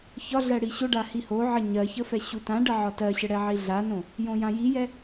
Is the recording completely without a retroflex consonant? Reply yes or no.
no